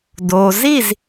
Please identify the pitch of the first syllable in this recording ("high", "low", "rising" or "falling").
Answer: low